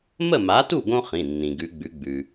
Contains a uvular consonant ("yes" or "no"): yes